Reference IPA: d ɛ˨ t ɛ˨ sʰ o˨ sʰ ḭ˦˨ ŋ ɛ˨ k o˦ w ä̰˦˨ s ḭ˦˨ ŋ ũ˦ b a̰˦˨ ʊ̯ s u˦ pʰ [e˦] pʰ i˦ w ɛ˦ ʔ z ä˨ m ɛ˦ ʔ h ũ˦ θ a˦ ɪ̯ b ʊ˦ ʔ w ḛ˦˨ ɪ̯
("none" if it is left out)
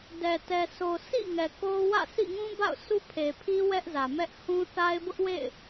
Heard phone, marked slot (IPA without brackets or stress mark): e˨